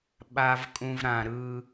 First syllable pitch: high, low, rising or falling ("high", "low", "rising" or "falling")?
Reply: low